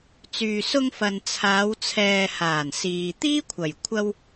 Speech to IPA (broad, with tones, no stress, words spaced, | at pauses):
t͡syː˨sʊ˧ŋfɐ˨n t͡sʰaː˨˧wt͡sʰɛː˨ haː˨˩nsiː˨ t̪iː˥kʷʰɐ˨˩j kʷʰɐ˧w